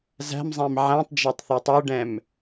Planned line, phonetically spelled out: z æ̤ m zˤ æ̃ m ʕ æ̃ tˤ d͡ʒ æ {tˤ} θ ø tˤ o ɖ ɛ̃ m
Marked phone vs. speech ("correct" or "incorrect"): correct